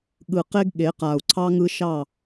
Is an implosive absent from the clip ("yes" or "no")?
no